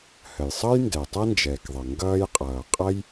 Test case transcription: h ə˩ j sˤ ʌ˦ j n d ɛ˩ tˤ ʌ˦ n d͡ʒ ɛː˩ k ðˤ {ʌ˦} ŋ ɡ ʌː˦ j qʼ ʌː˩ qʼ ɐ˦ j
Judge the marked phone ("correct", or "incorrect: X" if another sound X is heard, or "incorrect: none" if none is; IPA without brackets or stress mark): incorrect: ʌ˩